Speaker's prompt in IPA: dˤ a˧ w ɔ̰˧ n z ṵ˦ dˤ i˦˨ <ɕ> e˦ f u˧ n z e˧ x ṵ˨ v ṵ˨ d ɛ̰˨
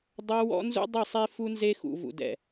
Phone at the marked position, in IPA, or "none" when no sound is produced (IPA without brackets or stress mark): sˤ